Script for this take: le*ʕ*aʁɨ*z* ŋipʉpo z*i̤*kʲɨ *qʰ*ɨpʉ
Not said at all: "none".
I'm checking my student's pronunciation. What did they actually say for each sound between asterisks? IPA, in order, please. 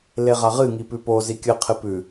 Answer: ʁ, none, i, qʰ

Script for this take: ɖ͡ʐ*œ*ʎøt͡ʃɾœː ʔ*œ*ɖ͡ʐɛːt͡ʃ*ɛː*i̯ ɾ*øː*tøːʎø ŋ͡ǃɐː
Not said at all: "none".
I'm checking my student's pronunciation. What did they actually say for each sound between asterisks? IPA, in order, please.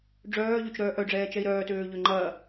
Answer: œː, œ, ɛ, œː

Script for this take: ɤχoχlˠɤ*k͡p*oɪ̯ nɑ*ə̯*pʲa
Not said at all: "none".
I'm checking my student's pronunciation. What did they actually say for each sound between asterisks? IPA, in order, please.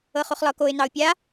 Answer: k, ʊ̯

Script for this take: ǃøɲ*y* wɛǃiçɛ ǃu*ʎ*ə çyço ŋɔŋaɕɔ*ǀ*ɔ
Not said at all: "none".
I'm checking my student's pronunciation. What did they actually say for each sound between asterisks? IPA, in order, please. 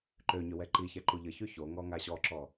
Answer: ø, ʎ, ǁ

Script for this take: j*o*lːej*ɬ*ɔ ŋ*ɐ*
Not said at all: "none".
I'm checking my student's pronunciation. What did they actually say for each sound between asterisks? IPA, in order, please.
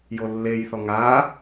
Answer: o, θ, a

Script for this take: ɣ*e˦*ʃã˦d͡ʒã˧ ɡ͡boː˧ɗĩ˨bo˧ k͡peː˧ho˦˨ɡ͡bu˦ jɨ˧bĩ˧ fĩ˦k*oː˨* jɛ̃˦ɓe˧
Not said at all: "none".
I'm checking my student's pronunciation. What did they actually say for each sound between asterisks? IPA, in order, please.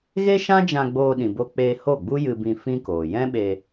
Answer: e˦, oː˨

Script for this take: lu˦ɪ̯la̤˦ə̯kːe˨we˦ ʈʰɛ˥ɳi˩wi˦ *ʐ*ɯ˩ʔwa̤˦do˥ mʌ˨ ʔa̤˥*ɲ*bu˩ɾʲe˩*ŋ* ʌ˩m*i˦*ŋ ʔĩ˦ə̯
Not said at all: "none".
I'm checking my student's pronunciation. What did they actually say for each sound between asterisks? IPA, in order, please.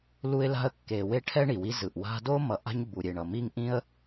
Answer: z, ɲ, ɳ, i˦

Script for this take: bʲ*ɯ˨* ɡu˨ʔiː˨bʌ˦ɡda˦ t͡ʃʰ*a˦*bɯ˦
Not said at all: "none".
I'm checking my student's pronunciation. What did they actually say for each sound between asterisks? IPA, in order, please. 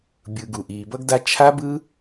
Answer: ɯ˨, a˦

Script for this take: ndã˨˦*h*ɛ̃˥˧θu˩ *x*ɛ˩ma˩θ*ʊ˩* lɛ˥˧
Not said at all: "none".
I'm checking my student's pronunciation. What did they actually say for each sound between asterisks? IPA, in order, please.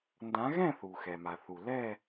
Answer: ɣ, x, u˩

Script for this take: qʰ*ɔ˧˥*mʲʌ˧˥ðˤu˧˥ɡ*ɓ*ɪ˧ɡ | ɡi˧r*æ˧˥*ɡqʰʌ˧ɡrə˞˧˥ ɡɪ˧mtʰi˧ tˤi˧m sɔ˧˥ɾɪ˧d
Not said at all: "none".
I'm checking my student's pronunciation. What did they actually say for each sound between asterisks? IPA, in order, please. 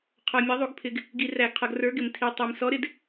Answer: ɔ˧, pʰ, æ˧

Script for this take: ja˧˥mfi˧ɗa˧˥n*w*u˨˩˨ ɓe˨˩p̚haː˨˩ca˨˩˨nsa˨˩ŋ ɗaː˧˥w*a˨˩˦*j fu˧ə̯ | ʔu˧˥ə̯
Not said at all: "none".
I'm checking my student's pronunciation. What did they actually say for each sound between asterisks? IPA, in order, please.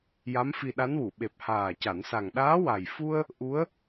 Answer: w, a˨˩

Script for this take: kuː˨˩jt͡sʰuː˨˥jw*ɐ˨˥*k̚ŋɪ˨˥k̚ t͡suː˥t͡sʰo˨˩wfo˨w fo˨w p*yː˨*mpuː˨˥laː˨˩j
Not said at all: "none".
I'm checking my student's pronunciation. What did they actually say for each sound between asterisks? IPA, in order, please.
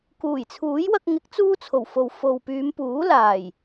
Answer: ɐ˧, yː˨˧

